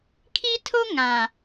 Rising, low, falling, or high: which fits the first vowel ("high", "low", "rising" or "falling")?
high